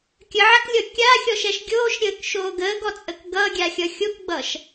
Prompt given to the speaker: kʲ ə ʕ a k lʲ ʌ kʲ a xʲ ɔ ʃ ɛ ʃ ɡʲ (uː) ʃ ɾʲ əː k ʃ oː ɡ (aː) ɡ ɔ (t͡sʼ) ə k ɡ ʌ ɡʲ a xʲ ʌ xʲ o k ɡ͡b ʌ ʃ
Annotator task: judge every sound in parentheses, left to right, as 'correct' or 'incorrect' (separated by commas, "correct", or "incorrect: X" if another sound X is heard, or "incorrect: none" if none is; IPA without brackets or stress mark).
incorrect: oː, incorrect: əː, correct